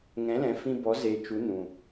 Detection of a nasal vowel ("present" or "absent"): present